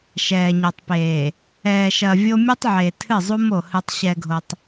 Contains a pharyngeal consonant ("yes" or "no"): yes